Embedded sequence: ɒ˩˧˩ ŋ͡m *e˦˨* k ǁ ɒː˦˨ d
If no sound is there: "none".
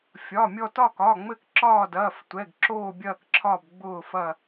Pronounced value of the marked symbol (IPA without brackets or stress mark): ɘ˦˨